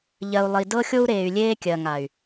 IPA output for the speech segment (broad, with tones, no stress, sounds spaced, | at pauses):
ʎ ɜ˨ u̯ lˠ i˨ d ɤ˦ xʲ o˦ u̯ ɾ eː˨ y̯ lʲ eː˦ kʲ ɜ˨ ŋ a˨ y̯